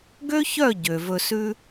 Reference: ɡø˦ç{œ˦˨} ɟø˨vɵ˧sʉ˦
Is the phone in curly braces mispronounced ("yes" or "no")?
no